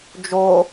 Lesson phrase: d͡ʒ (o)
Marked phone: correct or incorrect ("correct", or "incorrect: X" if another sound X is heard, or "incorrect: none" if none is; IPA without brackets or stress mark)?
correct